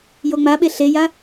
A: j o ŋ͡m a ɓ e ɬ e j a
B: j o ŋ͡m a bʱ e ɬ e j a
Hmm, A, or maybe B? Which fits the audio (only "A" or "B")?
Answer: A